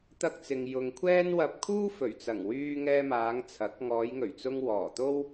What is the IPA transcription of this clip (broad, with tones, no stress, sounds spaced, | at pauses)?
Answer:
t̪ ɐ˧ k̚ t͡s ɪ˨ ŋ j ʊ˨ ŋ kʷʰ ɛː˥ n w ɐ˧ p̚ kʰ uː˥ f ɵ˨˩ ɥ t͡s ɐ˨˩ ŋ w yː˧ ŋ ɛː˧ m aː˨˧ ŋ t͡sʰ ɐ˨˥ k̚ ŋ ɔː˨˧ j ŋ ɵ˨˩ ɥ t͡s ʊ˧ ŋ w ɔː˨˩ t̪ o˥ w